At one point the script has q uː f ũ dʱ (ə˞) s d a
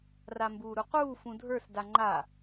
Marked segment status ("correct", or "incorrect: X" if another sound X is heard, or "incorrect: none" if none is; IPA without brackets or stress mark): correct